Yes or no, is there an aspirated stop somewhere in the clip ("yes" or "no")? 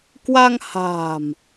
no